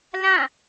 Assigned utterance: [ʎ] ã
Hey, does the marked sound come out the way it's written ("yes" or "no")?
no